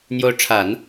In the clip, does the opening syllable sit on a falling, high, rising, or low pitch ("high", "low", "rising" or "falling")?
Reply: rising